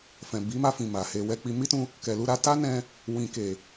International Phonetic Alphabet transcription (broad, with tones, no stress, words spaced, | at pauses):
fɛ̃˨bi˨˦ma˧fĩ˨ ma˨he˧ wɛ˧k͡pi˧ mi˦tũ˧ | kɛ˨lu˧ ɾa˧ta˦nɛ̃˧ | wĩ˨ke˨